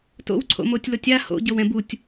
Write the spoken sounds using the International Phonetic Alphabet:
t o̰ w ǀʰ o̰ m o tʲ l o tʲ a h o̰ ɟ ɤ w ɛ̃ b u tʲ

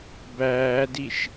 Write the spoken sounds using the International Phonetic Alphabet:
b æː d i ʃ

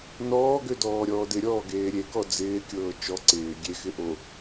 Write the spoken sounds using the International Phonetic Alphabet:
n ɔː ɡ ø d ɔː ɾʲ ɔː d ɪ ɾʲ ɔː ɡ eː ɾʲ e k ɔ d͡z ɪː kʲ ɤː t͡ʃ ɔ ǀ ɪː ɡʲ e x ɪ ʔ o

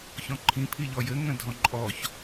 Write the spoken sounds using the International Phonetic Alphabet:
ç ɔ̃ ǃʰ ĩ pʰ i ʎ ɔ j ɘ ŋ ə̃ dʱ ɔ̃ ǃʼ ɔ ç

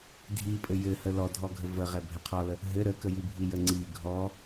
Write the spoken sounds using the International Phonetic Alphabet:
dʱ i pʼ ɘ j ɘ h ə l ɔ dʱ ɔ ɡʱ ə v ə ʁ ɛ bʱ ɛ qʰ ɔ l ə | ɦ ɘ ɾ ə k ə j i bʱ i j ə ŋ͡ǀ i ɡʱ ɔ

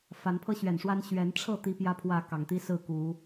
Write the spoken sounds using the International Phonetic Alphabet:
f a˨˦ n pʰ ɤ˦ ɕ ɥ ɛ˨˩ n ʂ w a˦ n ɕ ɥ ɛ˨˦ n ʈ͡ʂʰ ɤ˥˨ t̪ i˦ p j ä˦ pʰ w ä˥˨ k ɑ˨˩ ŋ t̪ i˦ s ɹ̩˥˨ k u˨˦

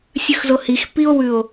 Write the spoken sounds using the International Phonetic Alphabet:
sʲ ʉ x z o h i x p i o̯ w ʉ o̯

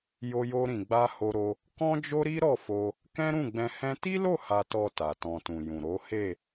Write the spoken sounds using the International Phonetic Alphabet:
j o˧ j o˧ ɾ ĩ˨ ɡ͡b a˧ h o˧ ɾ o˧ | k ɔ̃˦ d͡ʒ o˦ ɾ i˦ ɾ ɔ˦˨ f o˧ | k ɛ̃˦ ɾ ũ˦˨ ɡ͡b ɛ̃˧ h ɛ̃˦ t i˦ l o˦˨ h a˨ t ɔ˨ t a˨ t ɔ̃˧ t ũ˨ j ũ˨ ɾ o˨˦ h e˦˨

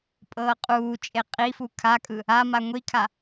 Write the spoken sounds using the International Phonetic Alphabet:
pʼ ɤː qʼ uː t͡ʃʼ e qʼ i f u kʰ a kʼ ɯ | a m a ŋʷ i kʰ a

